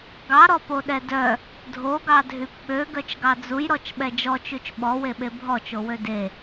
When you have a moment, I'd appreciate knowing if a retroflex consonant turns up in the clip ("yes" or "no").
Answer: no